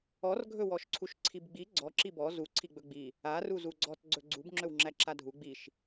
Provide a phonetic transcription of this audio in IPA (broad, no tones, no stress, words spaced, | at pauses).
ɔrɡʱɵ wɔʃǀʰuʃǀʰibɡ͡bi ɡ͡ǀɔǁi bɔ zuǀʰi ɡ͡bɵɡ͡bi | a ruzuɡ͡ǀɔt ɡ͡ǀɵɡ͡ǀub ŋ͡ǁɵwŋ͡ǁæǁadʱu ɡ͡biʃ